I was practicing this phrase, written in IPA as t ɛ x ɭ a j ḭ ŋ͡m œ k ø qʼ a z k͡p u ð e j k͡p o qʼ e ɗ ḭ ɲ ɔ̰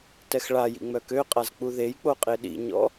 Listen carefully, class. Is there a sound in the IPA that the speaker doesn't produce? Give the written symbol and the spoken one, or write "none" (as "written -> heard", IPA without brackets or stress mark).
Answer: none